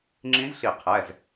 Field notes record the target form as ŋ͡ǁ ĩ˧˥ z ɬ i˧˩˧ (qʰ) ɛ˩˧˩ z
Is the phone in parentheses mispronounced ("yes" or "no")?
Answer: no